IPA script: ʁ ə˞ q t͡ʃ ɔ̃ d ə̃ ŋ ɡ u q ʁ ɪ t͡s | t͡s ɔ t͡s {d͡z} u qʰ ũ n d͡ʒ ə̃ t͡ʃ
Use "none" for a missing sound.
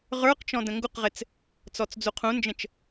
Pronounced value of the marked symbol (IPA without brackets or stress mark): d͡z